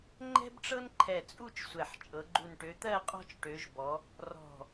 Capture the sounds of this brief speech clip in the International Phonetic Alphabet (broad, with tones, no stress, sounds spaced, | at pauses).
ŋ͡ǃ ɛ̤˥ b ʈ͡ʂ ɤ˥ n ǃʰ ɛ˧˩ t͡sʼ u˥˨ t͡ʃ sʷ ɛ˧˩ ħ t͡ʃʼ ɤ˨˦ ɡ͡ǃ u˧˩ n ʈ ø˨˦ t̪ ɜ˥˨ qʼ ɔ̤˥ t͡ʃ ʈ ø˨˦ ʒ b ɔ˨˦ | r ɔ̤˧˩